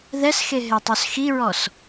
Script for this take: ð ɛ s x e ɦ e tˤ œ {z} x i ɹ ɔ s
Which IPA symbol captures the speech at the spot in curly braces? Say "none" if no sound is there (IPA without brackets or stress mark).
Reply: s